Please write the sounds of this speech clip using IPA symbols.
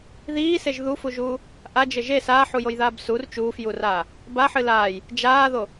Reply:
ðiːseʒ ðufuʒuː | ʔad͡ʒɘ ʒe saːħujojðaːb sur t͡ʃuːfjuraː | baħɨ laːj | d͡ʒaːðo

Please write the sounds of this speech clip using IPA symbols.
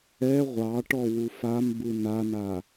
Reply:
ɛ ʁʷɑʈɔ wufambɯ nana

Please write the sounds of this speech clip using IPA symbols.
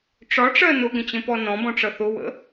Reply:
ʈ͡ʂɒʈ͡ʂɜ nʊɡə̃t͡ɕə̃pɔ nɔ̃bɔ̃ʈ͡ʂʌ θʊwə̰

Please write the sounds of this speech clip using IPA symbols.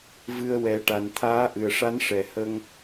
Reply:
vɨ˧ə̯wɛ˨˩˦ʈa˨˩n t̪ʰaː˧˥ʔɨ˨˩ə̯ʂa˧˥n ʂɛ˨˩hə˧ŋ

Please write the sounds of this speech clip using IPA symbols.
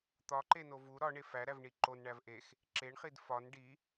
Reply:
t̪ɒǃeno vu ɾɒɳe fæɾævɳi ǃonɳæv ʔex | ǁeɳχid fɒn ɖi

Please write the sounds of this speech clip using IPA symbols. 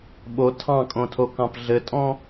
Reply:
ɓo tʰɑ̃kʼõtʰokɑ̃p ɮɘtʼɔ̃

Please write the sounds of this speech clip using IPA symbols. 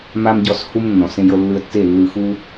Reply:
ma˦mɟɔ˦˨shu˦mnːɔ̃˨ sẽ˧jɤ˧lːɯ˧ə̯tːe˦˨ lːɯ˧ xu˦

